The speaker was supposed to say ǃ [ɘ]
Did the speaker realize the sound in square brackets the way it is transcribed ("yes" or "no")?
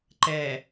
no